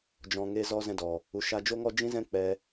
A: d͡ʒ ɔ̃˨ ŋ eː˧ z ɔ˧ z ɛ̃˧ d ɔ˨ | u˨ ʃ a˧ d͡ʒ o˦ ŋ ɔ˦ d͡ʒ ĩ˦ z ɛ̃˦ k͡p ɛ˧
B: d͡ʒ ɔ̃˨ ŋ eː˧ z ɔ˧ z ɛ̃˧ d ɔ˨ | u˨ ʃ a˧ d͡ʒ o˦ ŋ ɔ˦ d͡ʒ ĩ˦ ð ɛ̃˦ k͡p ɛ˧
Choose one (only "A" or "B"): A